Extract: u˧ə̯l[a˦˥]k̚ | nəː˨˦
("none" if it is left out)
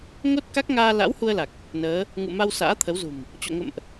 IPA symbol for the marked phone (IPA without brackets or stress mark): a˨˩